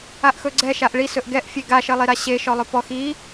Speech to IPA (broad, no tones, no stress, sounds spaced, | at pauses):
a ʔ x ɵ ɡ͡ǀ ɛ ʃ a ʔ ɭ i s ɵ ʔ ɡ ɛ ʔ fʲ e ɡ a ʃ ə lˠ i ɾ a ɕ e ʃ ɔ lˠ ɵ p ɔ x i